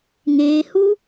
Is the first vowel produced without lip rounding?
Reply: yes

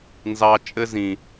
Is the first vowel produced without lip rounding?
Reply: yes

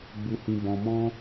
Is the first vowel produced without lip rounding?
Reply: no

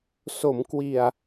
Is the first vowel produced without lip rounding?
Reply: no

